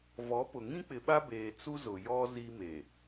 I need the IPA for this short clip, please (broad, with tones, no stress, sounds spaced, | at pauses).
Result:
v ɔ˨˦ p ʊ˨ ŋ ĩ˦ k͡p ɪ˨ ɓ a˦ b eː˨ t͡s u˦ z ʊ˨ j ɔ˦ z i˦ m e˨